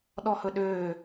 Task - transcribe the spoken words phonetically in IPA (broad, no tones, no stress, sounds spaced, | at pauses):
ɗ ɔ h ɵ ɗ øː